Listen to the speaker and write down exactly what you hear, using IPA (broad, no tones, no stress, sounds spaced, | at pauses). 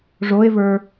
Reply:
ʐ o e̯ v ə˞